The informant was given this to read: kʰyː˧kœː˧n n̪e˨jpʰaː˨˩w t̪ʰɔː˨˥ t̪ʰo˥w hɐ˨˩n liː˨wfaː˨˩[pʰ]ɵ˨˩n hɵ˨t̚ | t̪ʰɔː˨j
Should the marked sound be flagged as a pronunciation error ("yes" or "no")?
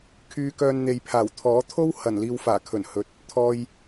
yes